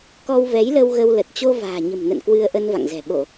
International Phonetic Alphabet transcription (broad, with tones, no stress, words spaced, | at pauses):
kɔ˧wvɛ˨˦jlə˧w ɣə˧wlə˨˩t̚ t͡ɕo˧ va̤ː˨˩ɲə̤˨˩mnə̰˧˨n kwɨ˧ə̯ʔə˧n va̰˧˨ŋzɛ̤˨˩ ɓo˧˩˨